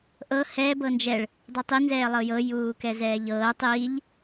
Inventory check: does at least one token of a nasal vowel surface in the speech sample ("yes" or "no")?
no